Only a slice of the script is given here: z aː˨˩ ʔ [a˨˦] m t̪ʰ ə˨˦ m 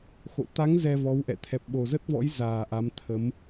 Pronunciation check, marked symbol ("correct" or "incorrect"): correct